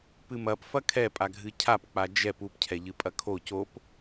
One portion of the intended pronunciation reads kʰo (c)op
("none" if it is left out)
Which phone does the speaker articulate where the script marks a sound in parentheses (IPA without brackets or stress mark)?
c